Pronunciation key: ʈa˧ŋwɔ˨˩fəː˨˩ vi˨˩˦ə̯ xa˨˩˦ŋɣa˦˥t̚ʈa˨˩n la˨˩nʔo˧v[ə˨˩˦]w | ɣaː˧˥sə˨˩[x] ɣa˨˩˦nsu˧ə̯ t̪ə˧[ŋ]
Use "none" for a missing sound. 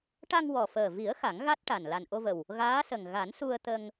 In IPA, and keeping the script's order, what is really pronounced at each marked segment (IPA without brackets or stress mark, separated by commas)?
ə˨˩, ŋ, ŋ